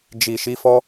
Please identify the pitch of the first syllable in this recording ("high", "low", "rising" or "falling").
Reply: low